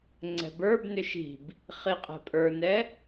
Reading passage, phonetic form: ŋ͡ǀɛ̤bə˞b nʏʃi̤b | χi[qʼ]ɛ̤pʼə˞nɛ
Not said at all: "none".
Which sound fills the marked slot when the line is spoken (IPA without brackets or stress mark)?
qʼ